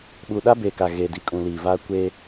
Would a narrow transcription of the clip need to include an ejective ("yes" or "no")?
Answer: yes